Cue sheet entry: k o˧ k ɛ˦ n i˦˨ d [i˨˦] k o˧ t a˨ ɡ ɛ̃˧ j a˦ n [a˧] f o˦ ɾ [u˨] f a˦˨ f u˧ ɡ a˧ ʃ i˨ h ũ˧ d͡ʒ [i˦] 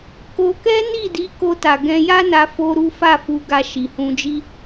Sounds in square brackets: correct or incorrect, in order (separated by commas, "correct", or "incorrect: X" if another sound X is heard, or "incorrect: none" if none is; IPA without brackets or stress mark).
correct, correct, incorrect: u˦, correct